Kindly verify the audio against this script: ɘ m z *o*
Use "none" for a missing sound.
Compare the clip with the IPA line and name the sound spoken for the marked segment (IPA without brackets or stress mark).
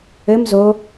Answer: o